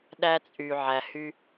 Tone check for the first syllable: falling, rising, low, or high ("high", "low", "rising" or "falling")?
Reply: high